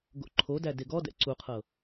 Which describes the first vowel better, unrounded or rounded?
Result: rounded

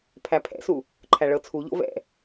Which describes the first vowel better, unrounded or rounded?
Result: unrounded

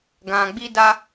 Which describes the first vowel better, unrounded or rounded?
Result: unrounded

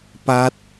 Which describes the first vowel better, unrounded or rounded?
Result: unrounded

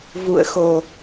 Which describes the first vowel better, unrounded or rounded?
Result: rounded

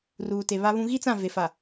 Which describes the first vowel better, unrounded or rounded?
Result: rounded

